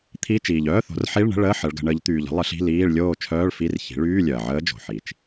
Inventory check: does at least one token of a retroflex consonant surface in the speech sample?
yes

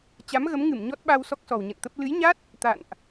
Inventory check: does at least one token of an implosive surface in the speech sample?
yes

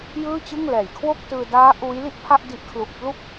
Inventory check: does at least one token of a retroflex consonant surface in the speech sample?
no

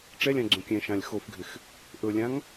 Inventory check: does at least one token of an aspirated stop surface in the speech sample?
no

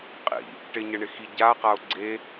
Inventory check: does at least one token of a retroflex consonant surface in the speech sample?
yes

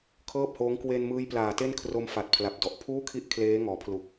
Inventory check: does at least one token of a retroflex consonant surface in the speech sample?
no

